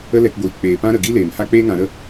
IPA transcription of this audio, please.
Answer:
ə˦ l ɛ˧ k ɡʷ iː˨ k͡p eː˨ p ã˦ ɾ ə˨ ɡ i˦ l eː˨ m h a˦ k͡p eː˦ ŋ ã˨˦ ɾ ə˦

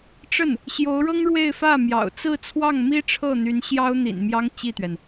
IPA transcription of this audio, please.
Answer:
ʈ͡ʂ ə˥˩ n | ɕ j o˧˥ ʊ̯ ɻ ɤ˥ ŋ ɻ w e˥˧ ɪ̯ f ä˥˩ m j ɑ̰˨˩ ʊ̯ t͡s ɹ̩˥˧ t͡sʰ w ɑ˥˩ ŋ m i˥ ʈ͡ʂʰ ɤ˥˩ n̪ y˧˥ n ɕ j ɑ˥ ʊ̯ n̪ ḭ˨˩ n m j ɑ˥ ŋ t͡ɕ i˥˩ t̪ ɥ ɛ˩ n

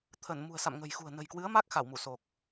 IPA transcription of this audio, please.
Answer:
t̪ʰ ə˧˩ n m ṳ˨˩ ə̯ s a̰˧˨ m ŋ ə̤˨˩ j x ṳ˨˩ ə̯ n ə̤˨˩ j k w ɨ˨˦ ə̯ m a˦˥ k̚ x a˧˩ w m u˧˩ s o˨˩ k̚

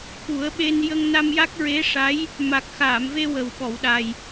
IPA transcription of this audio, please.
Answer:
k u˨˩˦ ə̯ ɓ e˧ n j ə˧ ŋ n a˧ m j a˦˥ k̚ ɹ e˧˥ ʂ a˧˥ j | m a˨˩ k̚ x aː˨˩˨ m v e˧ w ə˨˩ w ɓ ɔ˨˩˨ w ɗ a˨˩ j

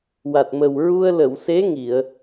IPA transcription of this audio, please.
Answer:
w a˨˩ t̚ m ə˨˩ w ɹ u˧ ə̯ l ə˨˩˨ w s e˧˥ ŋ i˨˩˨ ə̯

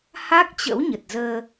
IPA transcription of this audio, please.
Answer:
h a˦˥ k̚ t͡ɕ ə̰˧˥ w ɲ ə˨˩ t̚ z əː˧

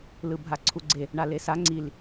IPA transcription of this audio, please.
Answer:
l ɯ bʱ a ǀʰ u ɡ͡ǀ e | ɳ a l e s a ŋ͡ǀ i l

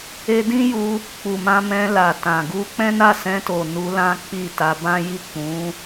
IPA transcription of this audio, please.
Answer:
e˧ d ĩ˦ j u˧ | k͡p u˨ m ã˧ m ɛ̃˧ l a˨ t ã˨ ɡ u˧ k͡p ɛ̃˦ n a˦˨ s ɛ̃˧ t o˨ n u˧ l ã˦ k͡p i˦˨ t a˧ b ã˦ j i˦˨ k͡p ũ˨˦

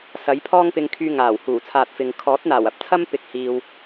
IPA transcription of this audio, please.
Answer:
s ɐ˨˥ j pʰ ɔː˥ ŋ p ɪ˧ ŋ kʰ yː˧ ŋ aː˨˩ w h uː˨˩ t͡sʰ aː˨ t̚ f ɪ˨ ŋ kʰ ɔː˨˥ t̚ n̪ aː˨˩ w ɐ˨˥ p̚ t͡sʰ ɐ˥ m p ɪ˨ k̚ h iː˨ w

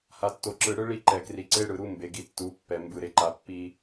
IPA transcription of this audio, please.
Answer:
h a˨ tː o˨ ǁ ɯ˨ ɽ ɯ˦ ɭ i˦ ǃ ɛ˨ k r i˨ ǀ e˦ ɽ ɯ˨ ɾ u˦ m b e˨ ɡ i˨ tː u˨˦ pː ɛ˨ m b ɯ˨ ɾ e˨ ǃ a˨ pː i˦

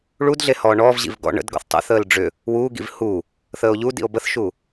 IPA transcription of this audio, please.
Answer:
ɭ u d ɮ e h ɔː ɳ ɔː v ʑ ḭ v ɡ ɔ̰ ɳ ə̰ d ɡ ɔ̰ θ tˤ ə̰ θ əː l ɖ͡ʐ ʏ | w uː ɡ ḭ v h u | θ əː o̯ ʎ u d ḭ o̯ b ə θ ʃ u

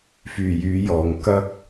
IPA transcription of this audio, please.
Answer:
f yː˨˩ j yː˨˧ j ɔː˨˩ ŋ k ɐ˥ k̚

